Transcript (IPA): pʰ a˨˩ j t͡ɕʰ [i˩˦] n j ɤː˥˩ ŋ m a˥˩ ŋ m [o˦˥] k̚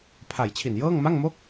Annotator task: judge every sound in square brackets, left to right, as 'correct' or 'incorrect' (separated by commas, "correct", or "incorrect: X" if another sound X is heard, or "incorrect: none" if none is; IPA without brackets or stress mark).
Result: incorrect: i˨˩, incorrect: o˥˩